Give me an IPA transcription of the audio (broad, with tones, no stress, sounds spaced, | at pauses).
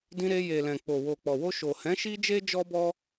d ĩ˧ ɾ e˧ j e˨ l ɛ̃˨ k͡p o˨ w o˨ k͡p ɔ˨ w o˧ ʃ o˨ h ɛ̃˨˦ ʃ i˦ d͡ʒ e˦ d͡ʒ ɔ˦ b ɔ˦